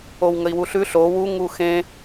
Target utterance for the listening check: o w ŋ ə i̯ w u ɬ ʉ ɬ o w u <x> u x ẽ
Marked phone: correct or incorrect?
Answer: incorrect